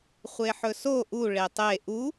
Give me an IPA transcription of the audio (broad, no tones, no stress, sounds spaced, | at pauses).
χʷ e ħ ɵ s o ʔ u ɭ e tˤ e ʔ u